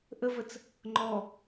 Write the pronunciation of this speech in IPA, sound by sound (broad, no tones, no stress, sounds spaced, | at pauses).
ʔ ə v ə t͡s | ŋ͡ǃ ɔ